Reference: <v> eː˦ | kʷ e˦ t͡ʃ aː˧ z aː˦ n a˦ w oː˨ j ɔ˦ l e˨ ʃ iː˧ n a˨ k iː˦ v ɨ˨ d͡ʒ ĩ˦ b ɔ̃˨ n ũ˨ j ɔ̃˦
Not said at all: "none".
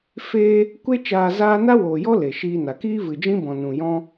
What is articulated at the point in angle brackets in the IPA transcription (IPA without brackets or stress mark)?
f